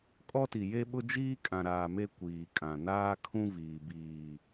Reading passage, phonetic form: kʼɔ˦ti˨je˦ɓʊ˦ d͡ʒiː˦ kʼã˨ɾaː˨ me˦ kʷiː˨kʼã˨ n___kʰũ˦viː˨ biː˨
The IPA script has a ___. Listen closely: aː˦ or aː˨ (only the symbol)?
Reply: aː˦